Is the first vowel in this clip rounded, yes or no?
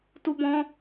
yes